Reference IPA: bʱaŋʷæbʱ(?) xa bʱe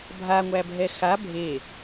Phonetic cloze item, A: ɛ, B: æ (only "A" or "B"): A